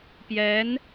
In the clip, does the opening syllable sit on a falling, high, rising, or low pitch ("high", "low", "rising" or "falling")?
rising